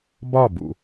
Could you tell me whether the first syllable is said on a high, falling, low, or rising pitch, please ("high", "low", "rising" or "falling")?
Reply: falling